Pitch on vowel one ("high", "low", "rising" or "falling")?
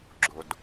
low